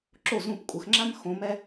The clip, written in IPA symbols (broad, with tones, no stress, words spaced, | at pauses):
ǁo˥˩zũ˥˩pkʷʼə˩˥xŋ͡ǁã˥m xõ˧˥mɛ˥